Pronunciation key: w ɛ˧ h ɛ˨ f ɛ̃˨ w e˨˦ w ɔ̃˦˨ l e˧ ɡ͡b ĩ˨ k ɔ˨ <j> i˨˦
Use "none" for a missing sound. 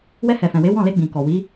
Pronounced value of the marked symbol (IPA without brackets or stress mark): w